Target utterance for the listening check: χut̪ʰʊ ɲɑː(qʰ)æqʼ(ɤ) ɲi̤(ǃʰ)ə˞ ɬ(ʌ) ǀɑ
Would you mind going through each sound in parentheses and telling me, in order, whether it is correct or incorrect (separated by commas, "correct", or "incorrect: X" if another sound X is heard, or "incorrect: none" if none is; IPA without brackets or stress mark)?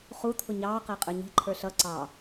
incorrect: q, incorrect: ə˞, correct, correct